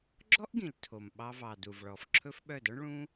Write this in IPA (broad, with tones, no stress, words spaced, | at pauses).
ɡ͡ǁɔ˦ʔɡĩ˨l tʰo˨m ɓɑ˧vɑ˨du˨v ɭɔ˨fǁʰɵ˦f ɓœ˦˨dɔ˦ɳ ɭũ˦